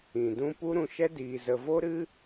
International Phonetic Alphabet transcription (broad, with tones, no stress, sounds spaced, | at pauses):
ĩ˨ d ũ˦ p u˦ ɾ ũ˧ ʃ ɛ˦ d iː˧ z ə˧ v o˦ ɾ ɨ˦